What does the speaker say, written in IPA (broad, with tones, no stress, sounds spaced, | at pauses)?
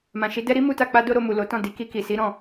m ã˨ ʃ i˨˦ d ɛ˦ ɾ i˦ m u˦ t a˦˨ k͡p a˧ d o˧ ɾ o˧ m u˨ l o˨˦ t ɔ̃˦˨ d i˨ k i˧ k i˨ s i˨˦ ɾ ɔ̃˦˨